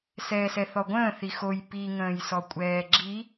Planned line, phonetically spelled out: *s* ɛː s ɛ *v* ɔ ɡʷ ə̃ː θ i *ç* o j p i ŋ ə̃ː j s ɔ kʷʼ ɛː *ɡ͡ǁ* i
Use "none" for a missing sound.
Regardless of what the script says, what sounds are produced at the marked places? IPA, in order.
s, θ, x, ɡ͡ǁ

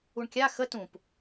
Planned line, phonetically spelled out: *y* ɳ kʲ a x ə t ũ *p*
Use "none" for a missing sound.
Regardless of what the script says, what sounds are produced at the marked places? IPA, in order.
u, p

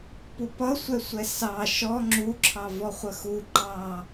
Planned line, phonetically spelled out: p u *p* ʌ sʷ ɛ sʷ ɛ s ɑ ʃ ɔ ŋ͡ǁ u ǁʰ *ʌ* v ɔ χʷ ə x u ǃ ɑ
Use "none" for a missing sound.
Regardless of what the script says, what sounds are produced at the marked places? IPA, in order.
p, ɑ

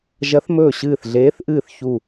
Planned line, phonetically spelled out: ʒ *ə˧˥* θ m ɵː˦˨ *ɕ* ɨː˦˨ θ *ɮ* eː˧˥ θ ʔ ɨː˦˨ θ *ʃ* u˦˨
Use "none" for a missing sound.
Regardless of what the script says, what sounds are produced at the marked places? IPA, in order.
ɐ˧˥, ɕ, ɮ, ç

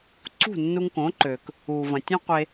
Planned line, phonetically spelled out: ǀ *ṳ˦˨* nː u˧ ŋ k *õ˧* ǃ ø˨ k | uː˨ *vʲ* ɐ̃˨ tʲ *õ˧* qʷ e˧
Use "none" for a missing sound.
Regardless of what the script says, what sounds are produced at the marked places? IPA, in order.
ṳ˦˨, õ˨˦, v, õ˦

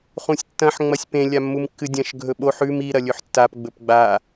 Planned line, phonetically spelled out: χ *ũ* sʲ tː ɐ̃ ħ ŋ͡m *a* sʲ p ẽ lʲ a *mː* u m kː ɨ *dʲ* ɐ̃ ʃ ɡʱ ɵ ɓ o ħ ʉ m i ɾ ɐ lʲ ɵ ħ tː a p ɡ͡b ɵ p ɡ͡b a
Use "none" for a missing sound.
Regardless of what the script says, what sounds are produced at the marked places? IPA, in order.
ũ, ɐ, mː, dʲ

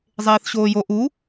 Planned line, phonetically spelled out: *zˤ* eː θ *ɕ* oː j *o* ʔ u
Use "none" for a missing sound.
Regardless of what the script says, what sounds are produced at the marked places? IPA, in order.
zˤ, ɕ, o

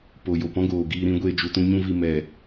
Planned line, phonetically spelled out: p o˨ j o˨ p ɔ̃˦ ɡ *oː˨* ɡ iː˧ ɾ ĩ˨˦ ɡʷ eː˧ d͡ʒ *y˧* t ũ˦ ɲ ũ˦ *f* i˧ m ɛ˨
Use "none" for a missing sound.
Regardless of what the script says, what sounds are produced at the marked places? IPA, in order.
oː˨, u˧, v

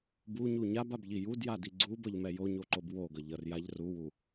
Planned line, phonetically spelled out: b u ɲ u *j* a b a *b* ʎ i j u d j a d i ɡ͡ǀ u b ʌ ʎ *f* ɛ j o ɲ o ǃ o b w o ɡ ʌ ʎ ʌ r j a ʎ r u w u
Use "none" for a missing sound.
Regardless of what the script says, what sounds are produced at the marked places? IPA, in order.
ɲ, b, m

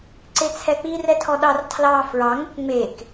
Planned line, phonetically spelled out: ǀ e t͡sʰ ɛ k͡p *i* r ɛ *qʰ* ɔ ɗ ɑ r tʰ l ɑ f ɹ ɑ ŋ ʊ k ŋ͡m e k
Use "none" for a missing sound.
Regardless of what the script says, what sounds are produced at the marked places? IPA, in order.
i, tʰ

